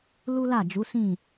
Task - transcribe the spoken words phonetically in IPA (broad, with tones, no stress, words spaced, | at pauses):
lu˦la˦˨ d͡ʒu˨˦sĩ˦˨